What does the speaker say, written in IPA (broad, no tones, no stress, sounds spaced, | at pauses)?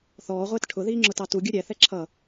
θ ɔː ʁʷ ɪː t ʈʰ ʊ ð iː ŋ͡ǁ ʊ t ɑ t u ɡʲ u ɾʲ ɛ θ ɛ ǁʰ ʌ